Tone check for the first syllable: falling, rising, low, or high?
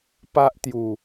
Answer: high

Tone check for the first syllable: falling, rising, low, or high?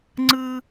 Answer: high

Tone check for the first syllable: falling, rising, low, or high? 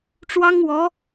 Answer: high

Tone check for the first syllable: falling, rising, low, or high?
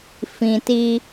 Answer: low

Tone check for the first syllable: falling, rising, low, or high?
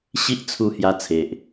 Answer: high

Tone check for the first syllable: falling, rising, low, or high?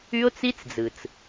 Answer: high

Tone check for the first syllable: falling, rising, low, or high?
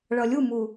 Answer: low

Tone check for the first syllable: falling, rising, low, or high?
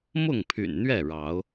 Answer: falling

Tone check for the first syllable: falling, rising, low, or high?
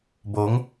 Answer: rising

